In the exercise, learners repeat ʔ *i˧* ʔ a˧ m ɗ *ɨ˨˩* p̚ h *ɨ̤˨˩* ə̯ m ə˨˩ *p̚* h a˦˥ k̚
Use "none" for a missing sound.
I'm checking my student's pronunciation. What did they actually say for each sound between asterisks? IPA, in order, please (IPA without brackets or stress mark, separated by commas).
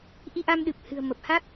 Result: i˧, ɨ˨˩, ɨ̤˨˩, p̚